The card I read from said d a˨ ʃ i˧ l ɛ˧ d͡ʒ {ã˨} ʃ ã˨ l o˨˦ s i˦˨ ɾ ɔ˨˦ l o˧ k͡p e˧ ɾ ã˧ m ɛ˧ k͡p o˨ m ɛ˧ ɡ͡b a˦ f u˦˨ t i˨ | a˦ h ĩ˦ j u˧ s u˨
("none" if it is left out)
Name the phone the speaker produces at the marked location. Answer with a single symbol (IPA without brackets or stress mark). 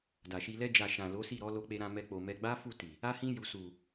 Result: a˨